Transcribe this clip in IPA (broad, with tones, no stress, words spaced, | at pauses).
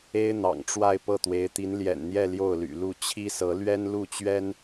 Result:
e˥ɪ̯n̪ɑ̰˨˩ŋ ʈ͡ʂwa˥˧ɪ̯ pɤ˥˩t̪we˧˥ɪ̯t̪i˧˥n ljɛ̰˨˩nn̪jɛ˥˧ ljo˥˩ʊ̯ly̰˨˩lu˥˩ t͡ɕʰi˥sɤ˧˥ lɥɛ˥nlu˥˩t͡ɕɥɛ˥n